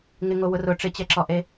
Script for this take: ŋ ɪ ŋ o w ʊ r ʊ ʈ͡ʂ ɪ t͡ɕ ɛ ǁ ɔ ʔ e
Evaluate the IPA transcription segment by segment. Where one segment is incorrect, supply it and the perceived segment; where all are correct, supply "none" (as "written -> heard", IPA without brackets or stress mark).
none